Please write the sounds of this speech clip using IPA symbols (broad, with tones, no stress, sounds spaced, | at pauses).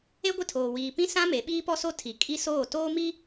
e˦ ɡʷ ɪ˦˨ tʰ oː˨ w iː˨ p ĩ˦ s ã˦ m e˨˦ ɓ iː˦ p ɔ˦ s o˦ tʰ i˨ kʼ i˦ s oː˦˨ t oː˦ m i˦